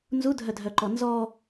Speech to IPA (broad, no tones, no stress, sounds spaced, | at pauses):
n z u dʱ œ dʱ œ ǃ ɔ n z ɔ